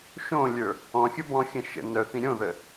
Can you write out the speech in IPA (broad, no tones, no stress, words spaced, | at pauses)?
ʃõlʲə˞ | ɔ̃xʲə bɔ̃xʲə̃ ʃə̰ nœθĩ ɾʲõðə